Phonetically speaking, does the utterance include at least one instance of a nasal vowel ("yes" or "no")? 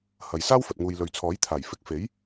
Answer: no